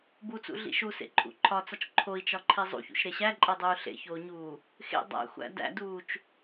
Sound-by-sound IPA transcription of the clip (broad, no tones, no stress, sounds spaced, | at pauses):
b u t͡s ṵ ɮ ḭ ʃ u s ḛ ǃʼ ṵ ǃʰ ɒ t͡s ɒ t͡ʃ ǃʰ o i̯ t͡ʃ ɒ ǃʰ i zˤ ṵ ç ṵ ʃ ɾ e ɕ æ ǃʼ e dˤ uː ɬ ḛ ç oː ɲ uː | x ḛ dˤ æ̰ xʷ æ̰ d æ̰ d uː t͡ʃ